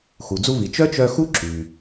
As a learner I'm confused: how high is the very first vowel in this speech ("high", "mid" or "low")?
high